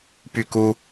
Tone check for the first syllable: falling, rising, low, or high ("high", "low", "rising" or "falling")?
falling